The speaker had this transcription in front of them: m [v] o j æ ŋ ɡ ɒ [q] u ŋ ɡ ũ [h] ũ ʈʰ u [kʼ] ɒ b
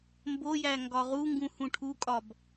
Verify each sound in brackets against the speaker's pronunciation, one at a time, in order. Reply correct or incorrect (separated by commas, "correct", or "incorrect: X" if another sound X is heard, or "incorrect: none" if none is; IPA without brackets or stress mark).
incorrect: b, incorrect: ʁ, correct, correct